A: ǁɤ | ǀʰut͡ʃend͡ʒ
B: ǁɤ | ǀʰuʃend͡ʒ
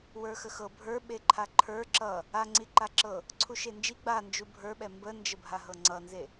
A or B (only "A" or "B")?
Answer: B